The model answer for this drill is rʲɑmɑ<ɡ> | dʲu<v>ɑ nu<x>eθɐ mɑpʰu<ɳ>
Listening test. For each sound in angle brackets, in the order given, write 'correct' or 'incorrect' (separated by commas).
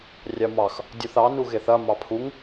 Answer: incorrect, incorrect, incorrect, incorrect